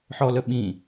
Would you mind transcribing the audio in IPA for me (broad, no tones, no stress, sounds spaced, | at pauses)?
ħ ɔ l ə ɓ ĩ